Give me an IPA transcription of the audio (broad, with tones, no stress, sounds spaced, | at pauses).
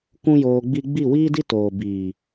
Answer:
kʷ ũ˦ j oː˧ ɡ͡b i˦ ɡ͡b i˦˨ w iː˦ d i˦ t oː˨ b iː˨